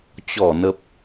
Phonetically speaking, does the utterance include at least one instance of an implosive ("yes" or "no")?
no